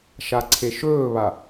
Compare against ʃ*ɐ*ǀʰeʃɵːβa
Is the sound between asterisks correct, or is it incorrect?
incorrect